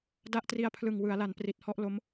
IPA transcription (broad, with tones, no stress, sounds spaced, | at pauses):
d a˦˥ ʔ t r i˧ a̯ pʰ l ɯ˨˩ ŋ w ɯ˩˦ a̯ l a˩˦ n p r i˨˩ t̚ h ɔ˥˩ ʔ l o˦˥ m